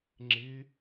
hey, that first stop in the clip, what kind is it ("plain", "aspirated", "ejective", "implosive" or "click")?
click